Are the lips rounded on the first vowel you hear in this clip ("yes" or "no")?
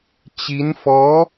no